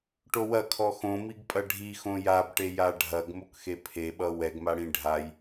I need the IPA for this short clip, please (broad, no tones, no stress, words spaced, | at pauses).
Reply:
ʈowɐ kʰɔxõmiɡpʼɐ ɖʱi xõjabʈe jaɖʱɐɡ mokxepʰeɓʌ wɛɡmaɽĩ ɖʱaj